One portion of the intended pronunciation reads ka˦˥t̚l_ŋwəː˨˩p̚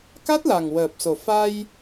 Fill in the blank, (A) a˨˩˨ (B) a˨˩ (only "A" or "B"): B